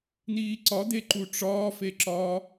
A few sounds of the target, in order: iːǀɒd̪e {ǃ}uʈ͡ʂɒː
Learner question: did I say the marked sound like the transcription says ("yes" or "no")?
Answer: yes